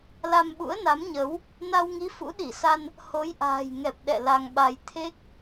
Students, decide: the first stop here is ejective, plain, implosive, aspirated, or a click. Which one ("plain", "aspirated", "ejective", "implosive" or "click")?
implosive